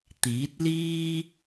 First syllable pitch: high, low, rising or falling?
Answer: rising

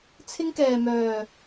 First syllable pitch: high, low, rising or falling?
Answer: high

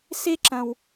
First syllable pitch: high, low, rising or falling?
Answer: high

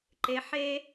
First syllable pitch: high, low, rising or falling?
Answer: low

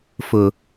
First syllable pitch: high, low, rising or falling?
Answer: low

